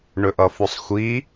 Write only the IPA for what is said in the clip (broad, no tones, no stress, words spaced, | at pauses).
ɳɵʔʌfosˤxʷi